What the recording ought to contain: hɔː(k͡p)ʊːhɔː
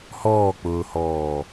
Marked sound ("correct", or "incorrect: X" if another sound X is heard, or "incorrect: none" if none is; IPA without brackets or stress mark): correct